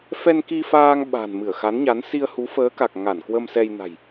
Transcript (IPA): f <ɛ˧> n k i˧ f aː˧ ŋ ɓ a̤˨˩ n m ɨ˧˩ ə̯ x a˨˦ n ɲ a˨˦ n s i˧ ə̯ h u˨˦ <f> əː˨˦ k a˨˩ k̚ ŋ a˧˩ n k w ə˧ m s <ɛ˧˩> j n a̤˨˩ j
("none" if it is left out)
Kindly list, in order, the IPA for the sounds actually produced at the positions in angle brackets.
ɛ˧, f, ɛ˧

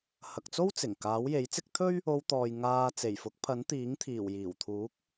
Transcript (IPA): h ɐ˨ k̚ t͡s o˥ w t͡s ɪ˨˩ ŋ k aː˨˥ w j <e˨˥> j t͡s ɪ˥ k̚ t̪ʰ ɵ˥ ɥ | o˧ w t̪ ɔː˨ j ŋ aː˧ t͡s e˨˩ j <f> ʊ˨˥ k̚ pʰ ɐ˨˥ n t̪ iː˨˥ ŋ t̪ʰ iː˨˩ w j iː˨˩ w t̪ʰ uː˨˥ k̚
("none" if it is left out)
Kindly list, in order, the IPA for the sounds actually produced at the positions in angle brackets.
e˨˥, f

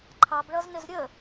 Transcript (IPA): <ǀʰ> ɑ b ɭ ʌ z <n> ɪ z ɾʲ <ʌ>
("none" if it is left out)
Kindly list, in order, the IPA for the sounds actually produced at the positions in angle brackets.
ǃʰ, n, ə

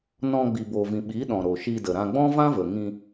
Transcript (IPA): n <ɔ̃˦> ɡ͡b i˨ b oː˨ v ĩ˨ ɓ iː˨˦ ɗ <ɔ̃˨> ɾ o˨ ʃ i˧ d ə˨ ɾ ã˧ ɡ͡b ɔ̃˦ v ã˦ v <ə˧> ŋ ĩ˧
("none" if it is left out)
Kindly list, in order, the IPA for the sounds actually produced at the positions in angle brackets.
ɔ̃˧, ɔ̃˨, ə˨

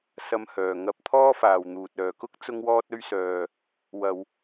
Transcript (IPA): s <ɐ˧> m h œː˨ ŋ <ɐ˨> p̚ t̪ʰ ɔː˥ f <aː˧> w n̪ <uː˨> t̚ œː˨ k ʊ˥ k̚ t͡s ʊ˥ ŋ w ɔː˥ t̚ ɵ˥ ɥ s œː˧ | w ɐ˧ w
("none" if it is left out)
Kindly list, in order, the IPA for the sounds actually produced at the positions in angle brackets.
ɐ˧, ɐ˧, aː˨, uː˨

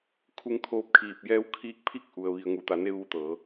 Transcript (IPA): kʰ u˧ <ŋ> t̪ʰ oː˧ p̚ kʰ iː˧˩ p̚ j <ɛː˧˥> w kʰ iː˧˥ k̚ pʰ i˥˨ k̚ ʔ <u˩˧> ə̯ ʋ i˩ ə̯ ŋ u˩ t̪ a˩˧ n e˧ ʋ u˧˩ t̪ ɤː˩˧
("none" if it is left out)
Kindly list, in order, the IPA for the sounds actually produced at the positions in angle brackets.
ŋ, ɛː˧˥, u˩

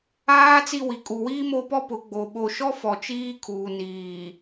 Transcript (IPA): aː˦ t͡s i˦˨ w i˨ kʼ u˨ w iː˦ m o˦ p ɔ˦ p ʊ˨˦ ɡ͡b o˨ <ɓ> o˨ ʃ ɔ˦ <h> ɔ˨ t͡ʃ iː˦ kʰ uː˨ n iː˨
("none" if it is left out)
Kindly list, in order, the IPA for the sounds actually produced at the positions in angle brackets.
ɓ, f

